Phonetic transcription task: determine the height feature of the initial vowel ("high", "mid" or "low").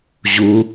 high